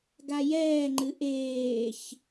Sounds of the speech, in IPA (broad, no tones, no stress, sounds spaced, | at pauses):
ɡ a j ɛː ŋ͡ǃ ɨ ʔ eː ç